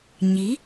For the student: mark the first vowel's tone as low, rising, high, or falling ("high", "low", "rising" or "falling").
rising